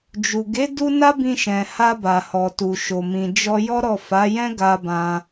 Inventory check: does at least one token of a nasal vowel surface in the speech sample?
yes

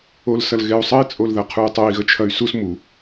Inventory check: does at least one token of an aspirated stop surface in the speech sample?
yes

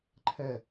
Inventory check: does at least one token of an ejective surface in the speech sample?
no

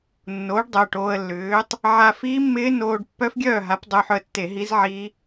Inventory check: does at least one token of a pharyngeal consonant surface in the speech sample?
yes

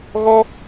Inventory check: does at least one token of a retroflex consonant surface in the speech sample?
no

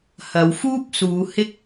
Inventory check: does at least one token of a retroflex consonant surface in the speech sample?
no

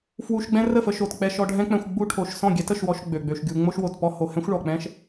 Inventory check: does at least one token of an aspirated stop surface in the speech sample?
yes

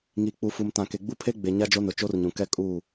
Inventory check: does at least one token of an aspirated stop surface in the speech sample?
yes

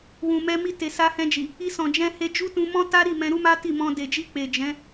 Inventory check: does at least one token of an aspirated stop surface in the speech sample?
no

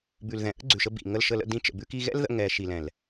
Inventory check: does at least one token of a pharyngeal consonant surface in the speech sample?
no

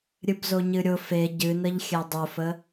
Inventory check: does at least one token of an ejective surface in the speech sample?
no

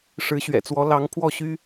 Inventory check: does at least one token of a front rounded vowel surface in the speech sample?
yes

